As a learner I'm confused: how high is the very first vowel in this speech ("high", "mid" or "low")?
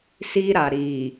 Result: high